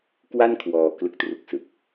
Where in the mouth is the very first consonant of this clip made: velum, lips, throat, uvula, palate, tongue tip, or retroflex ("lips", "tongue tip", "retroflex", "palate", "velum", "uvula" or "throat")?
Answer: velum